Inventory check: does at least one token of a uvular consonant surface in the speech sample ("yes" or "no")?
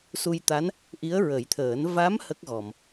no